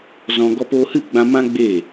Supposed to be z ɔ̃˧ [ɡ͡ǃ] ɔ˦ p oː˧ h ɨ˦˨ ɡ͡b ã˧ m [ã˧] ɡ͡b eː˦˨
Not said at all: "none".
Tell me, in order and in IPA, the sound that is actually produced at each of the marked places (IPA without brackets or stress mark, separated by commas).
ɡ, ã˦